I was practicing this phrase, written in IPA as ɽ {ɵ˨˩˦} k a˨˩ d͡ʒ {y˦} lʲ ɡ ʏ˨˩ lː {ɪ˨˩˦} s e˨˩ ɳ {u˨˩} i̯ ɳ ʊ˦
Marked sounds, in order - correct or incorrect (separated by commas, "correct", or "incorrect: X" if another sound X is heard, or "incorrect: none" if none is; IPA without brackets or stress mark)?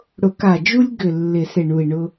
incorrect: ʊ˨˩˦, incorrect: u˦, correct, correct